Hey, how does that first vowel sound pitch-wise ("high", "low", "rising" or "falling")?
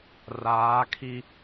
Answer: rising